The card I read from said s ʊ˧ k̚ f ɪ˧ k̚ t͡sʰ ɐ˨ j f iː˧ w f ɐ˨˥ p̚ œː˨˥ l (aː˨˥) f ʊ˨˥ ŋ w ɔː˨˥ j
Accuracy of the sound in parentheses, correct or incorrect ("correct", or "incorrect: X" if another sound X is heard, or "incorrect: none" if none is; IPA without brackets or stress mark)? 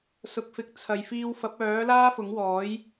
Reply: incorrect: aː˥